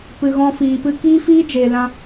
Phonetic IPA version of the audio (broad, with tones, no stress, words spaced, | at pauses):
pɨ˨ɣɔ̃˧fiː˨ pɨ˧kiː˦fiː˦ d͡ʒeː˨lã˧